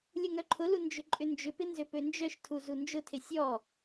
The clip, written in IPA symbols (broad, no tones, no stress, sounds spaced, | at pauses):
lʲ ʊ ŋ œ ǃʰ ʊ l u n d͡ʒ ʏ ǃʼ ʏ n d͡ʒ ʏ p ɪ n z ø p ø n d͡ʒ œ ʃ tʰ u z u n d͡ʒ ʊ tʰ ɪ sʲ ɔ